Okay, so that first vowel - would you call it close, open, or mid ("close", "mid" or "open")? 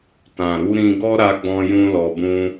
open